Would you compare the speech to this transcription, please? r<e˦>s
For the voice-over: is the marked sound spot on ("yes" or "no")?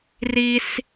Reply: no